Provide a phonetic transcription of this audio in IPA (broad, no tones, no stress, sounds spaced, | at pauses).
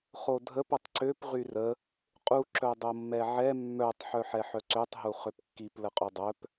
χ o dʱ ə p ə tˤ ǀ ø p ʁ y r ə | qʼ u ǁ œ dˤ o mː ɛ ʕ ɛ mː œ tˤ ħ œ ħ ɛ ħ œ ǀ ø tˤ ɦ u χ ø p kː i p l ə qʼ u dˤ œ p